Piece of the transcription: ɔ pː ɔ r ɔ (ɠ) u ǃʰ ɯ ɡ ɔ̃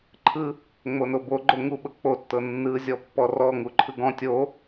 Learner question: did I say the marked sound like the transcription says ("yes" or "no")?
no